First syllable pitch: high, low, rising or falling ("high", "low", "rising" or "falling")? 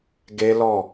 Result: high